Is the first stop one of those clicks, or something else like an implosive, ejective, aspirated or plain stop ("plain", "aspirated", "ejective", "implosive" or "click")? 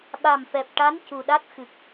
implosive